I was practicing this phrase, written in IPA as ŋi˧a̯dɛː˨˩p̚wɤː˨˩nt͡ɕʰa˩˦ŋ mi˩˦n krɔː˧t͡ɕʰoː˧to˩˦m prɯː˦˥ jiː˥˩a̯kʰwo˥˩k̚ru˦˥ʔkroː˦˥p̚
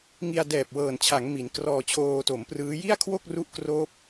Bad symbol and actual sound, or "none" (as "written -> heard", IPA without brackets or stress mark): iː˥˩ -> i˥˩